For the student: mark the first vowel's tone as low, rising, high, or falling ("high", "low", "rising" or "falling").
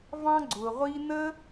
high